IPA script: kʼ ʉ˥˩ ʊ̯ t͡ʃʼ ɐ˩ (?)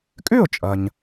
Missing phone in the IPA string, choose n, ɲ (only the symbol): ɲ